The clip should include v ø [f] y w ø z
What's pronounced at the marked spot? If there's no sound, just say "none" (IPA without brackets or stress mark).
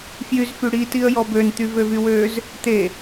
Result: v